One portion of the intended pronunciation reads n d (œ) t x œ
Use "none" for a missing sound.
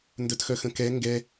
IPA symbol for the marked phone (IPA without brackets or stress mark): œ